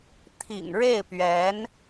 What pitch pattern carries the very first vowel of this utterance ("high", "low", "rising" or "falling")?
low